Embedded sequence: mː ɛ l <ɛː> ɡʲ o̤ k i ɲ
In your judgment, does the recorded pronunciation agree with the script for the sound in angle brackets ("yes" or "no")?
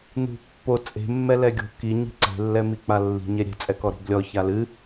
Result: no